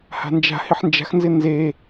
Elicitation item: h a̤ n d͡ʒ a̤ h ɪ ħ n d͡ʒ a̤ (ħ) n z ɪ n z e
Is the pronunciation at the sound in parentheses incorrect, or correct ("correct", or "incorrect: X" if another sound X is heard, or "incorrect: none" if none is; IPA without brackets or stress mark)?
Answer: incorrect: x